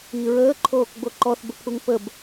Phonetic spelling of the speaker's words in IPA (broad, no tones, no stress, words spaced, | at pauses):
i ɹəːǃʰoːk ɡ͡boǃɔθbəpʰuŋ pəb